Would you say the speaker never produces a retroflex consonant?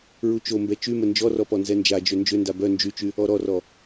yes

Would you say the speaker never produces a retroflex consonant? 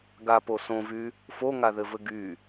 yes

